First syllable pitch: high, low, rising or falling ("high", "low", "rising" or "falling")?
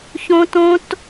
high